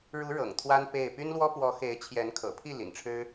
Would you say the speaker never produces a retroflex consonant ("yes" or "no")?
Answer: no